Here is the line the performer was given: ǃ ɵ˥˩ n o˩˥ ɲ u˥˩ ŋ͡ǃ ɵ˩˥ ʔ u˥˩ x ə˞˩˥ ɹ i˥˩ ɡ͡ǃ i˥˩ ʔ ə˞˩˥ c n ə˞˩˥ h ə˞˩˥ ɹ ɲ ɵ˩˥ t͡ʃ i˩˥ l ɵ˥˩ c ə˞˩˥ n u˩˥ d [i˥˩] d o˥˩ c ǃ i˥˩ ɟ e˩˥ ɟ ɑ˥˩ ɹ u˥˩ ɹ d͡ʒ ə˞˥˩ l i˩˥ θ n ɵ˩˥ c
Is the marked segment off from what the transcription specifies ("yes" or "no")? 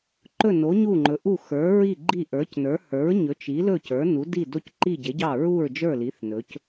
no